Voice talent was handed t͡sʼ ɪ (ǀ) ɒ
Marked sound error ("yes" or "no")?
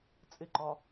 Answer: yes